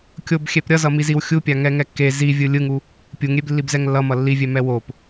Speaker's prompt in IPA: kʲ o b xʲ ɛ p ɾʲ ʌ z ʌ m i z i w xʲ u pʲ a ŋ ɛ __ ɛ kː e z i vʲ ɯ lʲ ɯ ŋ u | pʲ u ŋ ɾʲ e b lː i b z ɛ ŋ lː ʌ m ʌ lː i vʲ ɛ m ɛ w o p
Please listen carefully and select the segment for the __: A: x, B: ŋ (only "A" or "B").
B